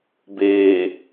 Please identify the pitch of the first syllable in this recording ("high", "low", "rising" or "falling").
low